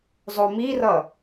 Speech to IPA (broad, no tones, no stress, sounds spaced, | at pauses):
zˤ o m i r ʌ